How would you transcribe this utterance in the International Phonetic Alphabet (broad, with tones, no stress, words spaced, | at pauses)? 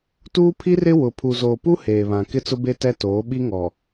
tuː˦pʰi˦rɪ˦ wʊ˨ pʰu˨zoː˨pu˦ heː˨βã˨ kɪ˦t͡sʊ˦be˦tɛ˦ toː˨˦ ɓi˦ŋɔ˨